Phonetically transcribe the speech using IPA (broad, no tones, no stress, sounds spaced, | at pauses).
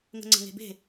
ŋ ə̤ ŋ͡ǀ ə̤ ŋ e̤ b e̤